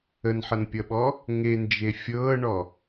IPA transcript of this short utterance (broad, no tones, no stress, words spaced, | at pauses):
ənħʌnpʲʌɓɔ | ŋend͡ʒe fʲɤːɳɔ